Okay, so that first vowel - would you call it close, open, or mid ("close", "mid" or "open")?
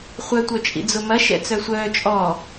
mid